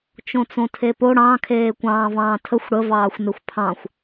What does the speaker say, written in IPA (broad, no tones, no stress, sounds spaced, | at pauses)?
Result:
t͡ʃ õ t͡s õ tʰ e p o ɽ ɑ̃ kʰ eː kʷ ɑ̃ː v ɑ̃ː tʰ ə xʷ ɽ ə v ɑː xʷ n e xʷ pʰ ɑ̃ xʷ